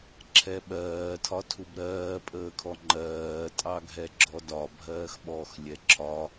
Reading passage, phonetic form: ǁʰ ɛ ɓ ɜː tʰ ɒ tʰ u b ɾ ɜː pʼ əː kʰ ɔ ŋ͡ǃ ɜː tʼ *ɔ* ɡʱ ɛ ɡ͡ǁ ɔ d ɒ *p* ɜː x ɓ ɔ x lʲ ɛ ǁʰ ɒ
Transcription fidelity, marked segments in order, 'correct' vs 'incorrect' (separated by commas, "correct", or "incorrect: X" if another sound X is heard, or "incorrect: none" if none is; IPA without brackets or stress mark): incorrect: ɑ, incorrect: bʱ